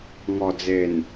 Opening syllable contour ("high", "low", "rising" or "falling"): low